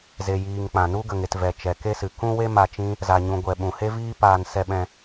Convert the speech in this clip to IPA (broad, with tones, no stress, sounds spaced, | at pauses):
z e˨ j iː˨ ŋ k͡p ã˨ n u˧ ɡ ə˨ ŋ e˨ t v ɛ˨ t͡ʃ ɛ˨ k e˧ s ɨ˨ k ũ˧ w e˧ m a˧ t͡ʃ ĩ˦ | z a˨ ɲ ũ˨ ɡʷ ɛ˨ ɓ ũ˨ h e˦ v iː˦ p aː˧ n s ɛ˧ ɓ ɛ̃˧